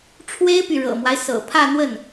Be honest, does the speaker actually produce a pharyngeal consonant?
no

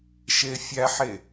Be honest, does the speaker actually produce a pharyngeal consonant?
yes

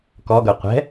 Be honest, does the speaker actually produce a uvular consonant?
yes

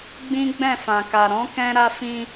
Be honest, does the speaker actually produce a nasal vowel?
yes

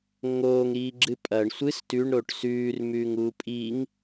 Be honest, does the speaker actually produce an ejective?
yes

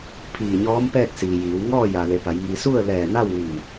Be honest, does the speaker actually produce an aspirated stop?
yes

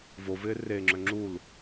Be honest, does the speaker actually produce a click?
yes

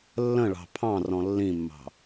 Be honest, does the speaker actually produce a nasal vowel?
yes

